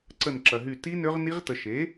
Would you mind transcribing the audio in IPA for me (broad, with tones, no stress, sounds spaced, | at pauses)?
ǀ ə˦˨ n ǁ ɐ˨ ɦ y˦˨ t i˦˥ n ø˦˥ ʁ n i˦˥ ʁ t ə˨ ʃ e˩˥